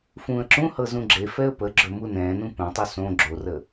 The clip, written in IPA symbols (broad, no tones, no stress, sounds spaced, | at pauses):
f ũː ə̯ ǁ ũ h ɤ z ũ ɡ͡ǁ e f ɛ ə̯ p ə ɡ͡ǁ ɵ m u n ɛ̃ː n ũ p ɛ̃ tˤ u s õ ɡ͡ǁ o r ə